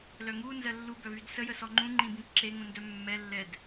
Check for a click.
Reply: present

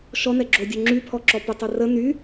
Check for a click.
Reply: present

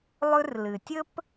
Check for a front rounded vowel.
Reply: absent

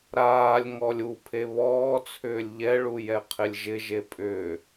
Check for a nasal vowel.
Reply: absent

